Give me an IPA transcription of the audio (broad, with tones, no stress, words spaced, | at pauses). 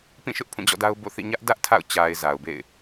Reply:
pĩ˦˨ʃʊ˦ʔ pʰũ˦˨d͡ʑɔ̰˦˨da˦ʊ̯ bo̰˦˨θḭ˦˨ ɲä˦ʔ dä˦ʔ tʰa̰˦˨ʊ̯ t͡ɕa˨ɪ̯ za˨ʊ̯bḛ˦˨ɪ̯